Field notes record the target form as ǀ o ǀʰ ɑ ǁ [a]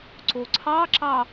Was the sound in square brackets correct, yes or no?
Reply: no